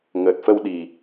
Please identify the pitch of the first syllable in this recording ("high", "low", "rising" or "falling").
low